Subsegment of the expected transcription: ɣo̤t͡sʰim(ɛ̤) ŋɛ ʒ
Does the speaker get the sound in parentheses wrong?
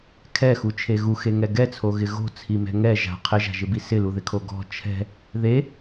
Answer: no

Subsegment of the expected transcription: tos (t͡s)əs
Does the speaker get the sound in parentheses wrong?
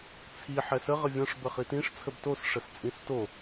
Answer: yes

